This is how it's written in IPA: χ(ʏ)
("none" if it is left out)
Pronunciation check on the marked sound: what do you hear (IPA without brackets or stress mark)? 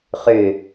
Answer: ʏ